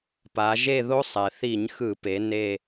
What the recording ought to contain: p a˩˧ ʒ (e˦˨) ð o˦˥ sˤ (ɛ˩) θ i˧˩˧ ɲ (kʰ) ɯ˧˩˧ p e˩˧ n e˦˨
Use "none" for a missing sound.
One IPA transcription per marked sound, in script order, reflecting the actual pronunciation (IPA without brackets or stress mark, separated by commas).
e˦˨, ɛ˩, x